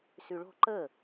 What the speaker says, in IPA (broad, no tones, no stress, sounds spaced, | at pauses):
s y ɭ o̤ ǃ ə